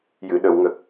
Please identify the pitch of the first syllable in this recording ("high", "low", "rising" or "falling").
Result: low